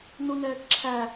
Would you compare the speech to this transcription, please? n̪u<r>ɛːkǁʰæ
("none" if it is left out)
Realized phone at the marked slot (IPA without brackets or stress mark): n̪